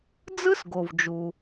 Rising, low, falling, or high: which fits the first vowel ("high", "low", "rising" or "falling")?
high